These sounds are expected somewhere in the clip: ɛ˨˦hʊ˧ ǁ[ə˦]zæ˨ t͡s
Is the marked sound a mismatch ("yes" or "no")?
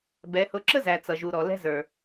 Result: no